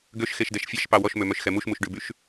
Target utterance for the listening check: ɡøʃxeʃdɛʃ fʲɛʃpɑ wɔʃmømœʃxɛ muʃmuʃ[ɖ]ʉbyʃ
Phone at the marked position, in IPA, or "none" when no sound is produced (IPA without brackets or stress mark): ɖ